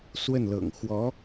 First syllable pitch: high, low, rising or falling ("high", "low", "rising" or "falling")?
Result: falling